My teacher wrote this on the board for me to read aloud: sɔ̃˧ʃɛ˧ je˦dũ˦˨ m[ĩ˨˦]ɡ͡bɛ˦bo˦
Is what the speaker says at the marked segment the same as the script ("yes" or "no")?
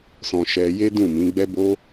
yes